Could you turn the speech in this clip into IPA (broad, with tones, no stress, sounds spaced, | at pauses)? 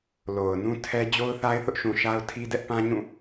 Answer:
l o˨ ʊ̯ n ũ˦ tʰ ɛ˦ d͡ʑ o˦ ʊ̯ θ a˦ ɪ̯ θ ʊ˦ ʔ ʃ ũ˨ ʃ a˦ ʊ̯ tʰ i˦ d ɛ˦ ʔ p ã˦ ɲ ũ˦˨